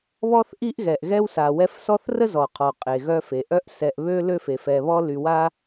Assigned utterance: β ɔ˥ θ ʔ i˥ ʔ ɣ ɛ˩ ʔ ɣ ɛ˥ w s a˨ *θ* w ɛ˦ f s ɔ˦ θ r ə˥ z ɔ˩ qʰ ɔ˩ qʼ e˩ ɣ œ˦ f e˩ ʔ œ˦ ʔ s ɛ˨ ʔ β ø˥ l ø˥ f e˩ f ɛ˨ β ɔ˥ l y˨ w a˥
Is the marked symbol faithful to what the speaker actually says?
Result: no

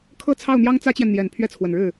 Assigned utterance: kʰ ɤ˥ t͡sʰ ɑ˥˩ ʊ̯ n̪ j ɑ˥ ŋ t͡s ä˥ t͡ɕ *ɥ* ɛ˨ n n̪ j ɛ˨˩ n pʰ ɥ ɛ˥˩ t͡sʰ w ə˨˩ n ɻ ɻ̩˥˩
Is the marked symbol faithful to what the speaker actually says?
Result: no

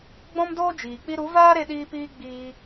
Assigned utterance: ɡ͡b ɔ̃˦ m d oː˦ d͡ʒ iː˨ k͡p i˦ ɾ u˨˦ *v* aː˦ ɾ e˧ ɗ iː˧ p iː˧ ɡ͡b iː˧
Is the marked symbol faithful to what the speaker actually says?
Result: yes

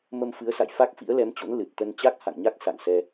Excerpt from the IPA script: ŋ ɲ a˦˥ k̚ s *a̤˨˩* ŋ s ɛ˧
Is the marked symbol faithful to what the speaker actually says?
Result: no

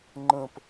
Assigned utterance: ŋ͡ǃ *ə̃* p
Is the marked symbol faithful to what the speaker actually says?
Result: yes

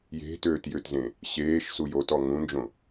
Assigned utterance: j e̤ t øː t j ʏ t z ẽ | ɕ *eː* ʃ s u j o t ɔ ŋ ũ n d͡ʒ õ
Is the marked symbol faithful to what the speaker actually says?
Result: yes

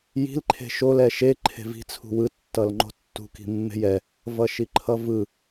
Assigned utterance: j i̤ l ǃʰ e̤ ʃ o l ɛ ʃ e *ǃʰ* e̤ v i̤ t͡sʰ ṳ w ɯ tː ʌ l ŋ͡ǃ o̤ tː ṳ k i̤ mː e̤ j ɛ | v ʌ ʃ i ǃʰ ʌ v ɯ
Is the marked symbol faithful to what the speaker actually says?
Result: yes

